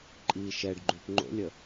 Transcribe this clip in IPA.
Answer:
ǃʼ iː ʃ ɛ ɖ ɡ͡ǃ ʉ p ŋ͡ǃ o̰ lʲ ə

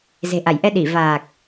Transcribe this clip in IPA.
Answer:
z e̤˨˩ ʔ a˧˩ j ʔ ɛ˧ ɗ i˧˩ v aː˨˩ k̚

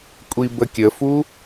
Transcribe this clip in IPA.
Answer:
kʷʼ i b ə kʲ ə f u

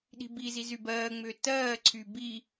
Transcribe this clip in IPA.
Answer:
ɗ i̤ b i z i z y b ɜː ŋ͡m ʏː t ɜː ǀʰ y b i

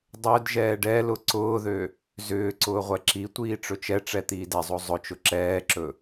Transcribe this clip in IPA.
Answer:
dˤ ø d ʒ ɛː ɖ ɛ l ʊ ǀ ʊː ð ø | z ʏː ǀ ʊː ʁʷ ɛ ǁ i tʷ iː ʈ͡ʂ ɵ t͡ʃ ɛ ʈ͡ʂ ɛ t̪ iː d ɛ zˤ o zˤ ʊ t͡ʃ ʊ ǁ ɛː ǁ ɵ

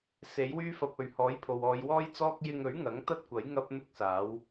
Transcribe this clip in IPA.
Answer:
s e˨˥ j w yː˥ f ɐ˧ p̚ ɵ˨ ɥ h ɔː˨˥ j pʰ o˨ w ɔː˨˧ j w ɔː˥ j t͡s ɔː˥ k̚ j ɪ˧ ŋ ɵ˨˥ ɥ ŋ ɐ˨˥ ŋ t̪ ɐ˥ t̚ kʷ ɐ˨˥ j ŋ ɐ˥ p̚ n̪ ʊ˥ k̚ s aː˨˥ w

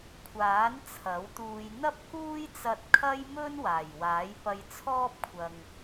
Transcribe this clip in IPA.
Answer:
kʷʰ aː˨˥ n t͡sʰ ɐ˨˥ w t̪ uː˧ j n̪ ɐ˥ p̚ k uː˥ j t͡s ɐ˧ t̚ kʰ ɐ˥ j m ɵ˥ n w aː˨˩ j w aː˨˥ j p ɐ˧ j t͡sʰ ɔː˥ p̚ kʷʰ ɐ˨ ŋ

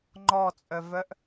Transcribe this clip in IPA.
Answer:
ŋ͡ǃ ɔ t͡sʼ œ v œ ʔ

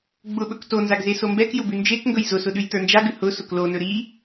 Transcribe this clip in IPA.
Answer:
ɡ͡b ʊ ɓ ɵ k t o n z a ɡ z e s o m b ɛ k j ʊ b ʉ n d͡ʒ e k ŋ ɡ ɵ j z ʊ s ʊ ɗ ʉ j t ə˞ n d͡ʒ a ɡ ʉ h ʊ s ʊ k l o n ɵ ɾ i

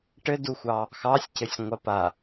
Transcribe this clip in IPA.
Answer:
ʈ ɘ d u xʷ ɑ | x ɑ sʲ c ɘ sʲ ŋʷ a p a

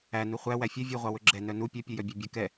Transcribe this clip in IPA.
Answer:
æ n u χʷ æ w æ fʲ ɛ vʲ u ʁʷ ɑ w ɵ ɡ͡ǁ ɛ n œ n u pʲ œ pʲ u j œ bʲ ɛ bʲ ɵ k ɛ

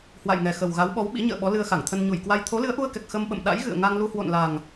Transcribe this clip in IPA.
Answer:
h w a̰˧˨ j ŋ ɛ˨˩ x ə˨˩ w ɣ a˨˦ w ɓ ɔ˨˦ w ɓ ḭ˧˥ ɲ ə̰ː˧˨ ɓ ɔ˨˦ l ɨ˧ ə̯ x a˧˩ ŋ t̪ʰ ə˧ n ɲ u˧˩ j k w a˧ j t̪ʰ o˨˦ l ɨ˨˦ ə̯ ʔ u˧ ə̯ k ɛ˨˩ k̚ x ə˧ m ɓ ə̰˧˨ m ɗ a̰˧˥ j ɣ ɨ̰˧˨ ə̯ ŋ a˧ ŋ l u˧ h w o̰˧˨ n l a˨˩ ŋ

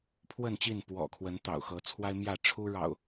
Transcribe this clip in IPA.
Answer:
pʰ w ə˥˨ n t͡ɕ i˥˨ n p w ɔ̰˨˩ kʰ w ə˨˦ n t̪ ɑ̰˨˩ ʊ̯ x ɤ˨˦ t͡sʰ w a˦ ɪ̯ m j ä˥˨ ʈ͡ʂʰ u˦ ɻ ɑ̰˨˩ ʊ̯

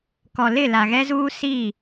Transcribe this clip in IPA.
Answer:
k ɔ˨ l ɪ˦˨ l a˨ ɣ ɛ˦ z uː˦ s i˦˨

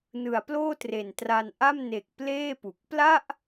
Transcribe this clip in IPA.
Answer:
n ɯ˩˦ a̯ p l oː˥˩ t r e˨˩ n t r a˧ n ʔ a˥˩ m n e˨˩ k̚ p l eː˥˩ p u˨˩ k̚ p l a˥˩ ʔ

